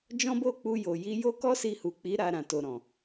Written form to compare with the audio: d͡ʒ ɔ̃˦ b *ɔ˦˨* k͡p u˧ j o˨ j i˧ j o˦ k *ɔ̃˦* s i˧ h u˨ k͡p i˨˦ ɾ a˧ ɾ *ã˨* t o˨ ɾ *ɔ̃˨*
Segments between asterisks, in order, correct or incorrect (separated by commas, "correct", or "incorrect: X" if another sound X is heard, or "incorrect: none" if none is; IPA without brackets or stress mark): incorrect: o˦˨, incorrect: ɔ˦, correct, correct